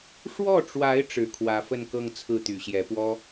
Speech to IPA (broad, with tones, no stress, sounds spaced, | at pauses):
ʂ w ɔ˥˩ ʈ͡ʂ w a˧˥ ɪ̯ ʈ͡ʂ ɻ̩˨˩ kʰ w ä˧˥ f ə˥˧ n k ɤ˥˧ ŋ t͡sʰ ɹ̩˥˩ t̪ y˨˩ ɕ j ɛ˧˥ p w ɔ˥